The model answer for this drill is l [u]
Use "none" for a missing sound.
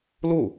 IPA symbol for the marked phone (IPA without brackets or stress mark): u